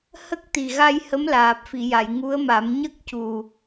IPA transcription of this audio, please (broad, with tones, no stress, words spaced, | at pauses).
hə˦˥k̚t̪i˨˩ɣa˧j hə˧˥mlaː˨˩p̚fi˨˩˨ja˨˩˨j ŋu˧˥ə̯ma˨˩˦m ɲə˦˥k̚cu˨˩